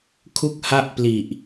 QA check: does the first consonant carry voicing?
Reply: no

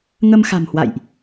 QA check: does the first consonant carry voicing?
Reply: yes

